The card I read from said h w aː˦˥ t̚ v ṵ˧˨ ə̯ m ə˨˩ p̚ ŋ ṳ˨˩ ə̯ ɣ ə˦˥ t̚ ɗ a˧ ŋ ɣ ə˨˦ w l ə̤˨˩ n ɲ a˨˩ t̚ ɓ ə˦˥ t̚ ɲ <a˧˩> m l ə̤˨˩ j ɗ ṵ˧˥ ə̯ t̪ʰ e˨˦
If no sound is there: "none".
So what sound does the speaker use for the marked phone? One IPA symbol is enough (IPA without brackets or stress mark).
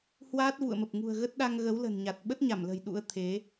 a˧˩